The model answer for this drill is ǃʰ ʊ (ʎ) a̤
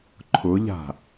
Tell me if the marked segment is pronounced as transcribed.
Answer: yes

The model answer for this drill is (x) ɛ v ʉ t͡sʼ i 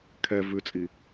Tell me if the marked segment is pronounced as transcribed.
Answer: no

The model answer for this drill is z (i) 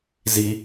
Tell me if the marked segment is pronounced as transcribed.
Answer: yes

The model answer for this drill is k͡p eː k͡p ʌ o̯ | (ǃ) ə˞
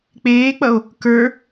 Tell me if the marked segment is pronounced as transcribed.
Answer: no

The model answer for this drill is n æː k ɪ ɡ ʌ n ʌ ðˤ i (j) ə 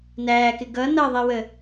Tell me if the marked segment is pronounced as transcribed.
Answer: no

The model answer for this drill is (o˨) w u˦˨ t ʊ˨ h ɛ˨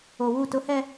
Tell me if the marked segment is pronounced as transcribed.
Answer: yes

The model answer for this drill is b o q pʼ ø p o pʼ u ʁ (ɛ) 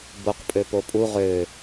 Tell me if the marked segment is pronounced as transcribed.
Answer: no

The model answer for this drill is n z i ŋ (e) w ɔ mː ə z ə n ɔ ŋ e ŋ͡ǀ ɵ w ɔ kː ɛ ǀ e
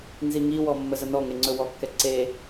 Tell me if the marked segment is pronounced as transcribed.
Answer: no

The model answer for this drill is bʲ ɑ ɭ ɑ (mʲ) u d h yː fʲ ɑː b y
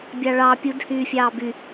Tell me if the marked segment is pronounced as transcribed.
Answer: no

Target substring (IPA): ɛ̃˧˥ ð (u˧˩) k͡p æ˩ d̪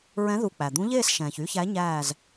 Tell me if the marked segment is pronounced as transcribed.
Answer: yes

